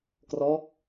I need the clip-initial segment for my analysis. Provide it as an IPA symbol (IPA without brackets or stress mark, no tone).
k